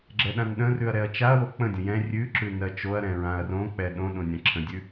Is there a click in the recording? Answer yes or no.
yes